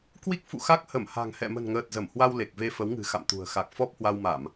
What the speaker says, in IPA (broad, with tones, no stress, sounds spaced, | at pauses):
k w i˦˥ k̚ f ṵ˧˨ x a˦˥ k̚ h ə˧˩ m h a̤˨˩ ŋ h ɛ̰˧˨ m ə̤˨˩ n ŋ əː˨˩ t̚ z ə˧˩ m h w a˧ w l e˨˩ k̚ v e˧ f ə˨˦ w ŋ ɨ̤˨˩ x a̰˧˨ m t̪ ṳ˨˩ ə̯ x a˨˩ k̚ f ɔ˦˥ p̚ h w a˧ w m a˧˩˨ m